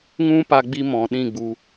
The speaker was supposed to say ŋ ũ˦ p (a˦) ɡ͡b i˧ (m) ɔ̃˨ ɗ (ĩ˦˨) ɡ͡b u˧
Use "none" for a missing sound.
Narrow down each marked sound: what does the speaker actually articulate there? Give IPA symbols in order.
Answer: a˧, m, ĩ˦˨

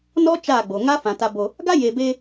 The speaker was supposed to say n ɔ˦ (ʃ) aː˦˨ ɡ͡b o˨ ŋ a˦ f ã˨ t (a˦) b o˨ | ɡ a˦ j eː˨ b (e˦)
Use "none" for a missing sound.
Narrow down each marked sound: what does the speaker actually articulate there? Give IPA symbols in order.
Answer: t͡ʃ, a˨, e˦

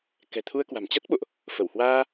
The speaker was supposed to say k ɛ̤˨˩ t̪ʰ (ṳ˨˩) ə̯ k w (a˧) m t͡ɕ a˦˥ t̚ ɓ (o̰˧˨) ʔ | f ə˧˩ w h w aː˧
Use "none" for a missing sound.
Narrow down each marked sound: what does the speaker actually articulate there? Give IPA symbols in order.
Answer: u˧, a̤˨˩, o̰˧˨

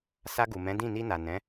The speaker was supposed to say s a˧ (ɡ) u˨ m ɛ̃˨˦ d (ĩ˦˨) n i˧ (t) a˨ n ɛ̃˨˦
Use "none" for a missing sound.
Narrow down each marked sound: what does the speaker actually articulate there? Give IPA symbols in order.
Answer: ɡ, ĩ˦˨, n

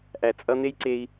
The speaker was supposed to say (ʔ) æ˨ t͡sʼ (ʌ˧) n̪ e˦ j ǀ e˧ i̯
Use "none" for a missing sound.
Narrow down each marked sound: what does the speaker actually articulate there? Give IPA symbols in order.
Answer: ʔ, ʌ˧

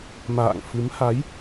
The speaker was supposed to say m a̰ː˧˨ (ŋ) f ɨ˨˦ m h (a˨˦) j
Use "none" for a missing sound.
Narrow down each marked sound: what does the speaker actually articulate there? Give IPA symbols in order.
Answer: ŋ, a˨˦

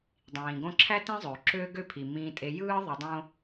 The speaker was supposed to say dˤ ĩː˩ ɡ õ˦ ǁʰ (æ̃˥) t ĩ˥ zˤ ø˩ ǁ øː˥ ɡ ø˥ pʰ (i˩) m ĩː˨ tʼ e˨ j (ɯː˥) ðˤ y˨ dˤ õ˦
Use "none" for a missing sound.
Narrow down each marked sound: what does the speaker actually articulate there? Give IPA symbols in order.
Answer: æ˥, i˩, ɯː˥

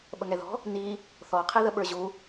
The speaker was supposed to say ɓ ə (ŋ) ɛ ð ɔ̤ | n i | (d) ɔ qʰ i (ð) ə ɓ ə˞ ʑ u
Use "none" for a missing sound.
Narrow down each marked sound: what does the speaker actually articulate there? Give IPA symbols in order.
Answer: ŋ, θ, ð

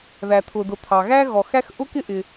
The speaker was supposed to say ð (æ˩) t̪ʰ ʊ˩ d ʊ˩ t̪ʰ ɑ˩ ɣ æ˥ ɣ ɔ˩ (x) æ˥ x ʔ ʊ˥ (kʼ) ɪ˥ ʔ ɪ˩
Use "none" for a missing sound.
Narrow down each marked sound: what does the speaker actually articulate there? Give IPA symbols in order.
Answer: æ˩, x, k

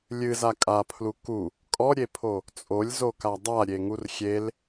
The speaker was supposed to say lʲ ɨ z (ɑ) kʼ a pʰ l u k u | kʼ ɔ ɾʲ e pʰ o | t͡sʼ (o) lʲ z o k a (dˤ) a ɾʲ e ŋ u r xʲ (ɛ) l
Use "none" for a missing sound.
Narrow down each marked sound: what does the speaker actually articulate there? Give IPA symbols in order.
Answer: a, o, dˤ, e

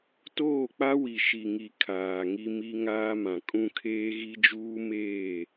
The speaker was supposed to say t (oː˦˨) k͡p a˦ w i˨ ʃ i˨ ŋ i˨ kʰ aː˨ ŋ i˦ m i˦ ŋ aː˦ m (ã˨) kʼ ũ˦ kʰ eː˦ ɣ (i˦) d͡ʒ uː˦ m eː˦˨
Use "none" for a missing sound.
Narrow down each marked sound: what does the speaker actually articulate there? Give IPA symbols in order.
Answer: oː˦˨, ã˨, i˦

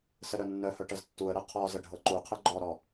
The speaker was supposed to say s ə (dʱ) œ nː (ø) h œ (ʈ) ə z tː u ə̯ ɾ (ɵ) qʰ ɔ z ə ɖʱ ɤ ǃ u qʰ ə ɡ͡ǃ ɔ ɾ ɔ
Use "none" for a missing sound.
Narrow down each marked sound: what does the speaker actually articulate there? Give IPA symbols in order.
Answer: ɾ, œ, ʈ, ɤ

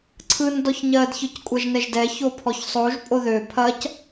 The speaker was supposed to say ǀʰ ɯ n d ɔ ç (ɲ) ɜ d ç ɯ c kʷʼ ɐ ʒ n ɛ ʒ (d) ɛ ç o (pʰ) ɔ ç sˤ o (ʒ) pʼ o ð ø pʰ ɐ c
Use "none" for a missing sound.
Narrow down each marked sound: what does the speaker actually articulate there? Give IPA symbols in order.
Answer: ɲ, d, pʰ, ʒ

